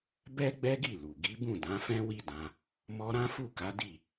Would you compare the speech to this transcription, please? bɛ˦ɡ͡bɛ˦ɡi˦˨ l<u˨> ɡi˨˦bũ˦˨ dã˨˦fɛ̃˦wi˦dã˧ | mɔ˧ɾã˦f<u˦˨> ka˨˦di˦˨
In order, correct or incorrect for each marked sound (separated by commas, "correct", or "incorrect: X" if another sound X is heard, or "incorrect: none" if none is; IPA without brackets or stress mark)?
correct, correct